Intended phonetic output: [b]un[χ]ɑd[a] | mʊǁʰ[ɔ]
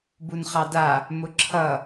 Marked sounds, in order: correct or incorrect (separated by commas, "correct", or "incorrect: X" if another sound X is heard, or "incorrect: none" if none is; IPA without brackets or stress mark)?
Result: correct, correct, correct, incorrect: ʌ